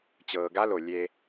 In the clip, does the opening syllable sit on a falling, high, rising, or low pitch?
low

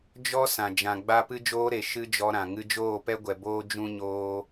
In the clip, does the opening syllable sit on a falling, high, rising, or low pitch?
high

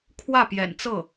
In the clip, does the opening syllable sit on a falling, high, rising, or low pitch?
falling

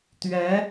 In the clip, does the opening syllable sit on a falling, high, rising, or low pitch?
rising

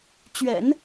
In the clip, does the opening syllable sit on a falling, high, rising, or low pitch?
low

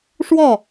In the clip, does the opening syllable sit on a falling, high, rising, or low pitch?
falling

